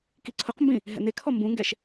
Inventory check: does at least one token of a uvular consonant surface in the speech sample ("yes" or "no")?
yes